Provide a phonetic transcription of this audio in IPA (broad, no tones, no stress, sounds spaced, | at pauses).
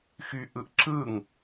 x y ʔ ɯ ʔ ǁ ɯ ŋ